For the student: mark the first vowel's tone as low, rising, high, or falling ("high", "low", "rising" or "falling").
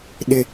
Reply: high